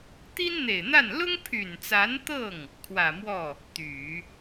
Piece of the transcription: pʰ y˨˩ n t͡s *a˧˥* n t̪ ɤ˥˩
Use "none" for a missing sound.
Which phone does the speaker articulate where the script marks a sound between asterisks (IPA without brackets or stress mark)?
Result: a˧˥